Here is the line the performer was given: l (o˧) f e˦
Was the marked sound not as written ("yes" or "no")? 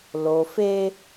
no